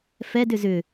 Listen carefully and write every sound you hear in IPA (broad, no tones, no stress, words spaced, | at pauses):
fɛd ʏzʏ